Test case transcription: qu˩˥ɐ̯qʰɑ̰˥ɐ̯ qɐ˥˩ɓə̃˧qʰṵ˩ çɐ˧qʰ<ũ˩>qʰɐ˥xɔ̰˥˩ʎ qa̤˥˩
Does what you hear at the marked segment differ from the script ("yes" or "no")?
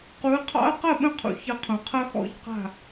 no